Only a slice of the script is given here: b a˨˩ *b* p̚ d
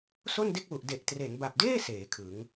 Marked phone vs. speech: incorrect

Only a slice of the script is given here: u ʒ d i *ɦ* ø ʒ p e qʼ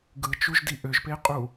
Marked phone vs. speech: incorrect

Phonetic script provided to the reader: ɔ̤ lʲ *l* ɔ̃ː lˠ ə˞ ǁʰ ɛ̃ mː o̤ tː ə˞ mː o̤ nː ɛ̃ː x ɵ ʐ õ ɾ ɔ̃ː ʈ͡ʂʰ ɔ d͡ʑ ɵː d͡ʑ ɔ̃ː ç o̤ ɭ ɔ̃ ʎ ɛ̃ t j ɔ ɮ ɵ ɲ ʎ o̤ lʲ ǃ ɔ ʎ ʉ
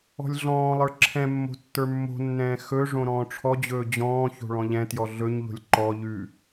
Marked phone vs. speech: incorrect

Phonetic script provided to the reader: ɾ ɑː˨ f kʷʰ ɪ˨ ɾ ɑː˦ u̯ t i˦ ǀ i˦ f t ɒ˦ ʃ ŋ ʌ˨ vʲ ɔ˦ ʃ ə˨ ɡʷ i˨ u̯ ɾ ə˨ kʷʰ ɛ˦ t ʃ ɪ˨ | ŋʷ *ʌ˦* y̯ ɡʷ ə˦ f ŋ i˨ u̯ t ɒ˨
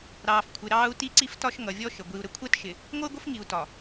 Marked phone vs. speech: correct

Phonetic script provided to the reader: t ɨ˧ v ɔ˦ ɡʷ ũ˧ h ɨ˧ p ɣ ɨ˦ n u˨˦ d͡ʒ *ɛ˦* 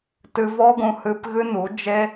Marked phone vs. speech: incorrect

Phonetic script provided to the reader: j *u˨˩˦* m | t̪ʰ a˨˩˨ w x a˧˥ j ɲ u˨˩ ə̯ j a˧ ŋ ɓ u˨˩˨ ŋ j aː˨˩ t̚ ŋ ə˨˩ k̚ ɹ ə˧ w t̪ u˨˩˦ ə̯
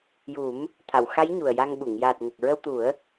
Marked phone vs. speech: correct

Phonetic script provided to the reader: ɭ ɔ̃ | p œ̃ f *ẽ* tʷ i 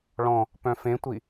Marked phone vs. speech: correct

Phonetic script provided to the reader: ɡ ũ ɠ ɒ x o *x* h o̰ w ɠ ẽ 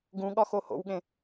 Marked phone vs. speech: incorrect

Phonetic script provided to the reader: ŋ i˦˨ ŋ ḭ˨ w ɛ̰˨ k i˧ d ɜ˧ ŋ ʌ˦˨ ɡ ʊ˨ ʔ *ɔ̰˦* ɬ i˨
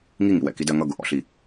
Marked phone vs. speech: incorrect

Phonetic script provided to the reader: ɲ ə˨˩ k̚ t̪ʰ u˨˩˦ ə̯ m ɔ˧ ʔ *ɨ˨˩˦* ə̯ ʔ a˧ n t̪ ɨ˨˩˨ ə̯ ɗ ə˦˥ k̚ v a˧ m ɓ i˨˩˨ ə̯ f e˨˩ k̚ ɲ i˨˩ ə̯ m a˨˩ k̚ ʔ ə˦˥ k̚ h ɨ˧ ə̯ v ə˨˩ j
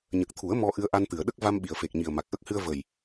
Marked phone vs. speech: incorrect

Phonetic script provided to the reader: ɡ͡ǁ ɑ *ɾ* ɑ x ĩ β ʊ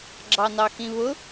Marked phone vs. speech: incorrect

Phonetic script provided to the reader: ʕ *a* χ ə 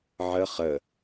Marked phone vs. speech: incorrect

